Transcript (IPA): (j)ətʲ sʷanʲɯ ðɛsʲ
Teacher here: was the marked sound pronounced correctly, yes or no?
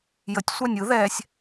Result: yes